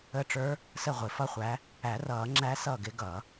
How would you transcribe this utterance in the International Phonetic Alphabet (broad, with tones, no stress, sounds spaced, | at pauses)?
ə˧˥ ʈ͡ʂ ə˞˧˥ | s ə˥˩ ʁʷ ɪ˨˩˦ f ʌ˥˩ χʷ æ˧˥ | æ˨˩˦ r ʌː˨˩˦ ŋ͡ǁ æ˧˥ s ʌː˥˩ ɡ ɪ˧˥ ɡ ʌː˨˩˦